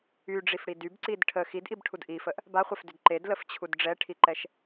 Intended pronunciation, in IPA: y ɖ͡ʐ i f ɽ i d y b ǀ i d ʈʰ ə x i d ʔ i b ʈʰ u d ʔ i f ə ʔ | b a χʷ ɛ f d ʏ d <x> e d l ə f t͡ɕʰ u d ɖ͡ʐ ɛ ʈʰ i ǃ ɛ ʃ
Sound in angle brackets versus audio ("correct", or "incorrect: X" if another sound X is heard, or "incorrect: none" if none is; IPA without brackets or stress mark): incorrect: ǃ